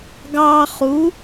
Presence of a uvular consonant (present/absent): present